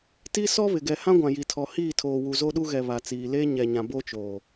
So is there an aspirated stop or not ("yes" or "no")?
yes